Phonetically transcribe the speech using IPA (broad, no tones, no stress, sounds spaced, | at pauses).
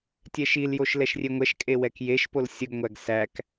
tʲ ɛ ʃ i l j o ʃ l ɛ ʃ rʲ e ŋʷ ɛ ʃ kʼ e w ɛ k j e ʃ p o l sʲ ə ɡ ŋʷ æ ɡ s æ k